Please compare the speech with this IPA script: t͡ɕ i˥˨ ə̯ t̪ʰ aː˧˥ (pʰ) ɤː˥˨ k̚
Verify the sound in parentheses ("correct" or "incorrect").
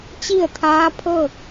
correct